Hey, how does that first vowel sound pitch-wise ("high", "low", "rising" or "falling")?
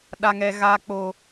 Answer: high